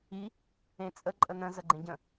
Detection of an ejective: present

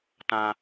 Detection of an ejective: absent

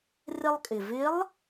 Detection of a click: absent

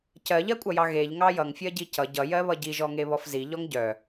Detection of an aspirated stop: absent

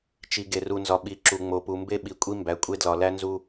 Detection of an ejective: present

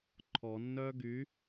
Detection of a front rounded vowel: present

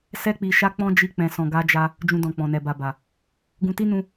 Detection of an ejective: absent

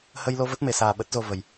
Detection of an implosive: present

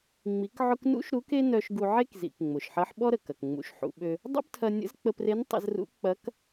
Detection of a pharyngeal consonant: present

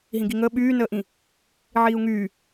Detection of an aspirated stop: absent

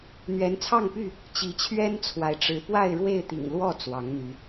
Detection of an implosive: absent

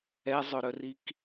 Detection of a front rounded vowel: present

